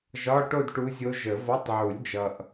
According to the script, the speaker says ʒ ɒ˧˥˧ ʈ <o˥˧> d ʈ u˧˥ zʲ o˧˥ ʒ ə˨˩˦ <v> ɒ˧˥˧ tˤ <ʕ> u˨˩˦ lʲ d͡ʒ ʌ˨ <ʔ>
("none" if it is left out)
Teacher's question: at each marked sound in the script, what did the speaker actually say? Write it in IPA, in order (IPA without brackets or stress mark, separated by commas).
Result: o˥˧, v, ʕ, ʔ